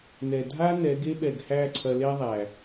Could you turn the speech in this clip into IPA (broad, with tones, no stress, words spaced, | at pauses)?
nɛ˨ dʱa˦ nɛ˨˦ɡe˦ɓɛ˨ɡhæ˦˨ ǀʰɐ˧le˦ðˤæ˨